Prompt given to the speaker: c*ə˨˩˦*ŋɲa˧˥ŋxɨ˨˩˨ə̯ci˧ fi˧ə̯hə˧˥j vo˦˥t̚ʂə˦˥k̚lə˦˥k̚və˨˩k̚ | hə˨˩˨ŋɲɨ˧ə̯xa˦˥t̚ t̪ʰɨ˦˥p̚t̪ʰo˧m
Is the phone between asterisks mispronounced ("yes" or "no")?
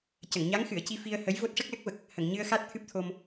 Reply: yes